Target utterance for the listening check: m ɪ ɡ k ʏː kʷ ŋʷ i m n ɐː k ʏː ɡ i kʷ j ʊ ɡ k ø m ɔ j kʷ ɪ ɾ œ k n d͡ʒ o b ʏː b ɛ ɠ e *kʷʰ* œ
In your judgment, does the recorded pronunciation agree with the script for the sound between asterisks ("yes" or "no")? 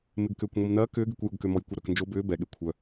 yes